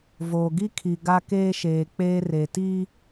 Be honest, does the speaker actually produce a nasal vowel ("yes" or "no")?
no